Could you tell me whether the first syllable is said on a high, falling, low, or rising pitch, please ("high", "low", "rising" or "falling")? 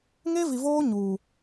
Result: high